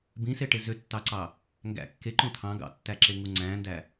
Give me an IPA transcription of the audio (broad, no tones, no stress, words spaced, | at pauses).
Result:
bĩseʈe zøtːɑǀɑ | ŋɡæ̰ kːeǃõ t̪ʰɑ̃ ɡɑ̰tːæǁeŋu ŋ͡ǀæ̃ndæ